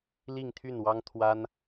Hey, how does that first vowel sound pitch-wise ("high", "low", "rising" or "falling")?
falling